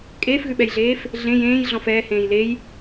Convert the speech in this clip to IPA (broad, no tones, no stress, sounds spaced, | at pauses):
kʼ eː f ɣ ʉ ɓ ɛ j ɮ eː f | ɮ ẽ j ẽː j ɮ ɔ̃ f ɛː h ẽː j l e j